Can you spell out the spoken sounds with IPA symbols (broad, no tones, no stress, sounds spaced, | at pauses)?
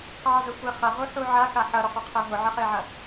q ɑ z ə sʷ e χ ɐ ʁ u ħ u ʕ a x a ħ ɐ ɾ ʊ qʷ e qʰ e ɦ ʊ ʕ ə χ e ʕ ɐ